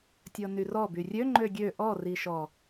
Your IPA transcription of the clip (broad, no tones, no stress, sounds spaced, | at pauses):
tʲ ɤ n y r ɔ b y rʲ ø ŋ͡ǃ ø ɡʲ ø ʔ ɔ r i ʃ ɔ